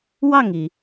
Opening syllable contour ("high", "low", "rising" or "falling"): falling